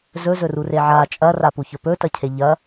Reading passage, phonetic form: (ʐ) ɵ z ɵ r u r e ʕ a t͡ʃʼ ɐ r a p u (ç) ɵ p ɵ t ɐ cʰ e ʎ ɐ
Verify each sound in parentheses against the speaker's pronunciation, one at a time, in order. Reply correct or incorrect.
incorrect: z, correct

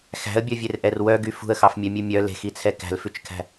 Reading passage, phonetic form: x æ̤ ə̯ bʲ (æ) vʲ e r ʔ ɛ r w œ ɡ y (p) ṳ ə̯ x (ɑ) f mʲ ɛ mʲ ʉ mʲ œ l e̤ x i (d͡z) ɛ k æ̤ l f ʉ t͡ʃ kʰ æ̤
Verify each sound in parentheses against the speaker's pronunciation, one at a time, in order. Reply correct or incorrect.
incorrect: œ, incorrect: f, correct, incorrect: t͡sʰ

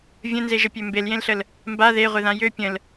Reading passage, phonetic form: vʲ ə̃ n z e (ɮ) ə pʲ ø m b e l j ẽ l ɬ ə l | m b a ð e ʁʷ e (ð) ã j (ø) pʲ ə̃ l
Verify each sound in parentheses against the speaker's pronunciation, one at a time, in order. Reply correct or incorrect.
incorrect: ʒ, correct, correct

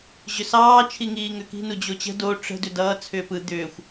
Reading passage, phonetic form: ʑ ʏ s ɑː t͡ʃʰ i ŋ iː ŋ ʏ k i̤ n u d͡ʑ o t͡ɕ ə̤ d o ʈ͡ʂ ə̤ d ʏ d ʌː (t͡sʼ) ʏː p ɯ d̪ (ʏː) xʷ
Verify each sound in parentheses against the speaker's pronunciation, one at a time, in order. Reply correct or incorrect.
incorrect: t͡sʰ, correct

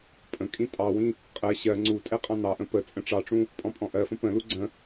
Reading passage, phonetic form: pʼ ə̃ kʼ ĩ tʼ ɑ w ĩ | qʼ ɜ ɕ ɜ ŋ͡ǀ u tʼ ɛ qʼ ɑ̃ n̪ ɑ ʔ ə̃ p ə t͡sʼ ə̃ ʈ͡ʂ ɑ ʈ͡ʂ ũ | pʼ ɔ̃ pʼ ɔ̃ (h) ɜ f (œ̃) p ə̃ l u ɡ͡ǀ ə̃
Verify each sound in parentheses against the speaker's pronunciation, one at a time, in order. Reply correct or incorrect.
incorrect: ʔ, incorrect: ə̃

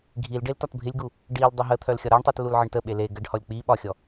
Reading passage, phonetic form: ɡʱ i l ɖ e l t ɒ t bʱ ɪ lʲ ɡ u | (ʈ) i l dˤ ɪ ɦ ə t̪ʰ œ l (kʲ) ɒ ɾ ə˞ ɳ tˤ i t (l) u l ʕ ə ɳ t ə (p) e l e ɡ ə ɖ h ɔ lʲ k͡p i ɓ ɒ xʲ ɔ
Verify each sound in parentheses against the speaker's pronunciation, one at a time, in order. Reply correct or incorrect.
incorrect: ɖ, incorrect: xʲ, correct, incorrect: ɓ

